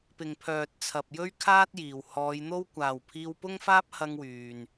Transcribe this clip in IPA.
p ɪ˨ ŋ pʰ œː˨ t̚ t͡sʰ ɐ˨ p̚ j ɵ˥ ɥ kʰ aː˥ t̚ j iː˨˩ w h ɔː˨˧ j n̪ o˥ w kʷ aː˨ w pʰ iː˧ w p ʊ˥ ŋ f aː˥ p̚ h ɐ˥ ŋ w yː˨ n

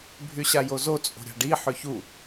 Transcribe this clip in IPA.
bʱ y ɕ a j o z o t͡sʼ o̤ ɾʲ a̤ ɖ i ħ ø ç u

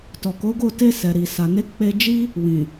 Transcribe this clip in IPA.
t ɔ˨ k o˨˦ ɡ o˦˨ t e˧ s ɛ˨ ɾ i˨ s a˨ n e˨˦ k͡p e˧ d͡ʒ i˦ | w ĩ˨

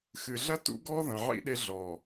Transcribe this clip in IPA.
x ɨ˨ ɮ ɐ˦ t ṵ˦ ɡ ɔ˦ ð ɐ̃˨ ʕ ḭ˦ ɗ e˦ ɮ ɔ˨

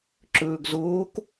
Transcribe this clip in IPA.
ǁ ɵː ɡ z oː k

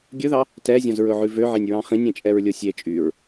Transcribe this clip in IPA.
ɡʲ ɵ ð ɑ | t ɛ zʲ ɔ̃ z ɹ ɵ ʕ ʉ v ø ʕ e nʲ ɹ ɑ̃ χ ĩ nʲ ẽ t͡ʃʼ ɛ ɹ lʲ o sʲ e t͡ʃʼ y ɹ

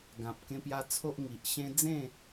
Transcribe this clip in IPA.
ɡ ã˨ p̚ k ẽ˧ p j a˧ t͡sʰ o˦ ʔ ŋ i˨ ʔ ɕ ẽ˦ d͡z ẽ˥˧

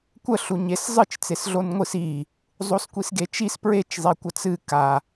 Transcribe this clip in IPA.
kʷ ə ɬ u ɲ e s zˤ ɨ t͡ʃ t͡s e s ɮ o n ŋʷ ɨ s i | zˤ o s kʷ i s ɡ e t͡ʃ i s p ɹ e t͡ʃ zˤ i kʷ ə t͡s ɨ k a

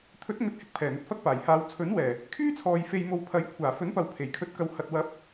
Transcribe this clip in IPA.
t̪ʰ ɵ˨˥ t̚ ŋ ɵ˨˥ t̚ h ɪ˨˥ k̚ pʰ ɛː˨˩ n̪ ɵ˧ t̚ f ɐ˥ k̚ p aː˨˩ j h aː˨˧ w t͡sʰ ɵ˨˥ n w ɛː˨˩ | kʰ yː˥ t͡sʰ ɔː˨ j f e˧ j m o˧ w pʰ ɐ˨˥ j kʷʰ aː˨˩ f ɵ˨˥ n p ɐ˨ w pʰ e˨˩ j kʰ ɵ˧ t̚ k ɐ˧ w h ɐ˨ t̚ w ɐ˨˥ p̚

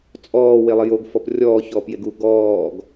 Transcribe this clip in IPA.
t͡sʼ ɔː w e lˠ e j o ɡ f ɔ p rʲ ɔː ç ɔː p j e ɡ u ɡ ɔː ɡ

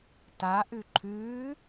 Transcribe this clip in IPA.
t a ʔ ʉ ǃʰ ʉː

